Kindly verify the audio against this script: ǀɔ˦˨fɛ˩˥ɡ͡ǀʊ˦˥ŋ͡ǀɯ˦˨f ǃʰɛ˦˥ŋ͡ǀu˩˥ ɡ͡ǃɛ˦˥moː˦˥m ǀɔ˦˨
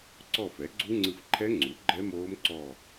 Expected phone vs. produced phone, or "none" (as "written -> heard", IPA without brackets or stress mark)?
ʊ˦˥ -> u˦˥